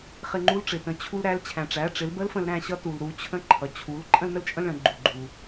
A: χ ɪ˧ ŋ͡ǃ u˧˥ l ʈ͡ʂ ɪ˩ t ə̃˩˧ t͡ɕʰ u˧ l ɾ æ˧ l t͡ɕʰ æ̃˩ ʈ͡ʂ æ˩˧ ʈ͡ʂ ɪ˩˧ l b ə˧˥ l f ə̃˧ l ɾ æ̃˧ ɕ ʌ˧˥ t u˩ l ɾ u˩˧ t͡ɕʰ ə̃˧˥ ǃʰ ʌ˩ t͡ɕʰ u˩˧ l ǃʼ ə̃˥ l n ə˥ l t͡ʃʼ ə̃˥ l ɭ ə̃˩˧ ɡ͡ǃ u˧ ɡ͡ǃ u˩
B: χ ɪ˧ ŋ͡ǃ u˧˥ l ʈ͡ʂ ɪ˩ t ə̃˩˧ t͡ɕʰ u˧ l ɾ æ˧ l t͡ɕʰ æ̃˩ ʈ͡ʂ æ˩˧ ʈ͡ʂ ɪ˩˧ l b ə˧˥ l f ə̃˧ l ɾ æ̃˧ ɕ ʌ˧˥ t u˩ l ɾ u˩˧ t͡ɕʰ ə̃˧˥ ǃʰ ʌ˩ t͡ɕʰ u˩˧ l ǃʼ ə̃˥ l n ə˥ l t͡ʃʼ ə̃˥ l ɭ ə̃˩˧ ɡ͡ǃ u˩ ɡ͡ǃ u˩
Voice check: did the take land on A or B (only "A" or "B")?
B